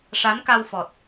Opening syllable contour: rising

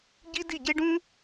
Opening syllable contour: high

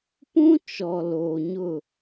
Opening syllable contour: high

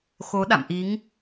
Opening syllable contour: rising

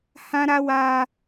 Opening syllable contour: high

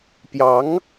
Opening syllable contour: rising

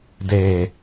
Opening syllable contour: low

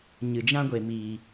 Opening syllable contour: low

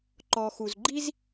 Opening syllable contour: low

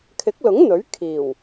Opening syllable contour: rising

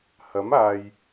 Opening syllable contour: rising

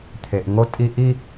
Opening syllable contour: low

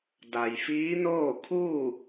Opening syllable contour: low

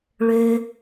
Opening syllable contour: low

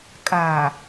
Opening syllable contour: low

